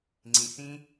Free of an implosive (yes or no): yes